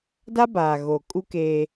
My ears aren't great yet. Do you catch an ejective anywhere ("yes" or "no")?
yes